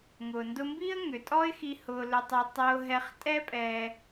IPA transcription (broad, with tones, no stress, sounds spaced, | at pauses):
ŋ ʊː˩ n d ʊ˧ m b iː˥ ə̯ ŋ ʏ˩ tʼ ɔ˥ ɪ̯ x i˧ h ʊː˧ l ʏ˧ tˤ ʊː˧ tˤ ʊː˧ ɦ ɛ˧ χ tʼ ɛ˥ pʼ ɛː˧